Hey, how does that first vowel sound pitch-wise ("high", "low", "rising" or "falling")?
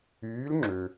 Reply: rising